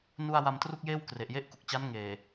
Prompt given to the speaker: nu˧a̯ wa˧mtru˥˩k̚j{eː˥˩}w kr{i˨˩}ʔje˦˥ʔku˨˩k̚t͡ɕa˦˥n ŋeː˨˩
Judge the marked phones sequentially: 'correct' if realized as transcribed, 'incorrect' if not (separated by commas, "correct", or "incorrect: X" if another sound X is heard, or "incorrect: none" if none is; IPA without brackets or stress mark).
correct, incorrect: e˨˩